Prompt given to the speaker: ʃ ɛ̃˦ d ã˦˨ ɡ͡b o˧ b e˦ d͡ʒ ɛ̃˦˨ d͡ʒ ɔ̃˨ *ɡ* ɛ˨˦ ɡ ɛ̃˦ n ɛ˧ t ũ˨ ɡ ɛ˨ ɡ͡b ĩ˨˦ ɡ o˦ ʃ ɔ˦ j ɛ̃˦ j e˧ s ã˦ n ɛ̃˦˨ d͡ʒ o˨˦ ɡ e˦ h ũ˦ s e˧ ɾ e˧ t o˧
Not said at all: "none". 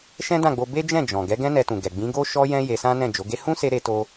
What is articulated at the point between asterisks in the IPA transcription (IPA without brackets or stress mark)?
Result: ɡ